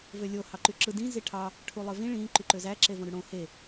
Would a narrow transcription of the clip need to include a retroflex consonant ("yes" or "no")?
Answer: yes